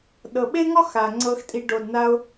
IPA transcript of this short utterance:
ɗ ɤ˨ ɓ e˦ ŋ ɔ˦ x a˨ ŋ͡ǀ ɤ˧ x tʼ i˧ ɖ o˨ d n a˧ ʊ̯

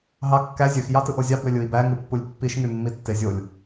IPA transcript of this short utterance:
ɦ ɑ kː æ zʲ ø x j ɑ t ɯ ʔ o zʲ ɑ b ø lʲ ɯ i̯ b æ ŋ ɯ pː u lʲ pː i ʃ ŋ y mː i tː e zʲ o lʲ

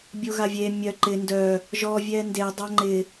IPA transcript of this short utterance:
bʲ o ɣ a vʲ e mʲ œ ǃ ɪ n d œ | ʒ ɔ vʲ ɛ n d e dˤ a ŋ͡ǃ ɪ

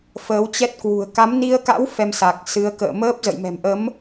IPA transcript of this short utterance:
f əː˨˦ w t͡ɕ ɛ˦˥ t̚ k w ṳ˨˩ ə̯ k a˨˦ m n i˧ ə̯ k a̰˧˥ w f ɛ˧ m s a˨˩ k̚ s ɨ˨˦ ə̯ k ə̰ː˧˨ m əː˦˥ p̚ z ə̰˧˨ j m ɛ̤˨˩ m ʔ ə˨˦ m

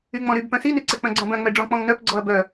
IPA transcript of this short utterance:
y ŋ͡m ɔ̃ ɾ y b p œ̃ s i n y ǀ ɛ k͡p œ̃ ɡ͡ǀ ɔ̃ b œ̃ ŋ͡m ɛ ɖ͡ʐ ɔ̃ k͡p ɔ̃ ŋ n œ p ɡ͡ǀ ɔ ɐ̯ b œ

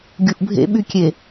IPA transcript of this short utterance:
ɡʲ u ʔ bʱ ḛ ɓ y kʲ e

